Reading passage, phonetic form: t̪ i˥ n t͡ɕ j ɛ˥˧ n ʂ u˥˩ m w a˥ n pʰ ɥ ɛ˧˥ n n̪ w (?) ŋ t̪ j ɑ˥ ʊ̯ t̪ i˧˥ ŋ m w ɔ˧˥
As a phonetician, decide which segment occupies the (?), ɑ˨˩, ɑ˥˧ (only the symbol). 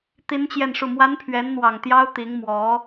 ɑ˨˩